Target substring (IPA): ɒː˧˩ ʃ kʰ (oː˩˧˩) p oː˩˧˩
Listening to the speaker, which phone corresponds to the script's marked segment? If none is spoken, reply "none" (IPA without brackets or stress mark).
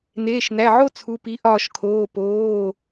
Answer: oː˩˧˩